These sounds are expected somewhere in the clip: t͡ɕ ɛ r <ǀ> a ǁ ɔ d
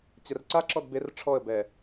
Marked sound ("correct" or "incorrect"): correct